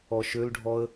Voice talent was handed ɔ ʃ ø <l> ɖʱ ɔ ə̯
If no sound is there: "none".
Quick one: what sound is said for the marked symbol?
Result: l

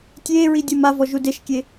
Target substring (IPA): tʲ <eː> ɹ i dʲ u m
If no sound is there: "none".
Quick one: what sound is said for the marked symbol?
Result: eː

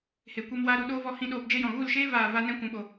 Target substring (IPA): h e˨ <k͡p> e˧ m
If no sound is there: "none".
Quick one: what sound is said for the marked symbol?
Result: kʷ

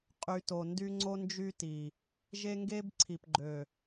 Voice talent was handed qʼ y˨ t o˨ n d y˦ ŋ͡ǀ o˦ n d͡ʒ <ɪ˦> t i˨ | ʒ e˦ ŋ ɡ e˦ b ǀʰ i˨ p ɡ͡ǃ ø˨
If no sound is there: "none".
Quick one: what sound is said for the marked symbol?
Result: y˦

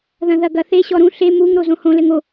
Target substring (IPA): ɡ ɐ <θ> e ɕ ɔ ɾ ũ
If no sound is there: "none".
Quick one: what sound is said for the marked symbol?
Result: θ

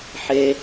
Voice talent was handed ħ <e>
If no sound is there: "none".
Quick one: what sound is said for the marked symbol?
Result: e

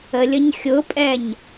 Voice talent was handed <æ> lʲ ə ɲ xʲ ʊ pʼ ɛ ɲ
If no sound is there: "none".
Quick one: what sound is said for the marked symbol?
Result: ə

